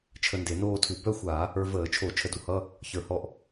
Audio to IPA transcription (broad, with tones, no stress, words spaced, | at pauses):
t͡ʃʰə˧nde˧˩˧noː˥˧tʰu˧˩˧ bœ˥˧xʷa˧˩˧ | ə˞˧vəː˧˩˧t͡ʃʰo˧˩˧ t͡ʃʰə˧˥˧du˧˩˧hʌ˧˥˧ | çə˞˧˩˧hɔ˧ʔ